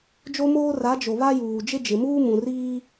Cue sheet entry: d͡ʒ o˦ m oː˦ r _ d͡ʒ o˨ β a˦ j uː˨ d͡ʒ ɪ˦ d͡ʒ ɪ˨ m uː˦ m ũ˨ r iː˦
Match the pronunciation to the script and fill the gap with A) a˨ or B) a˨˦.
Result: B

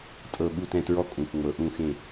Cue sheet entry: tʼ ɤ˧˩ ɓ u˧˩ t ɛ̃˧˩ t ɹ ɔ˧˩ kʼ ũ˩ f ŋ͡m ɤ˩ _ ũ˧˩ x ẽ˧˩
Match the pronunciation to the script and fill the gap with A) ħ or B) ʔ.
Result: B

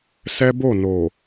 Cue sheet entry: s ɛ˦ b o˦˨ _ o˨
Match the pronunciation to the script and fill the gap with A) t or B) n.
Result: B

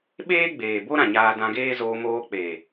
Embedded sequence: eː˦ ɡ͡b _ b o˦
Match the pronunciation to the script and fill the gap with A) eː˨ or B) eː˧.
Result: A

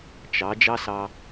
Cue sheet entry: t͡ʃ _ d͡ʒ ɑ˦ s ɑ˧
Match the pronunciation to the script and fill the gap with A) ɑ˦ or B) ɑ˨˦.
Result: B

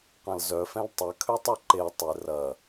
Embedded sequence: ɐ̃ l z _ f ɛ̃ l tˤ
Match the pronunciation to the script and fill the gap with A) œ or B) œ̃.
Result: A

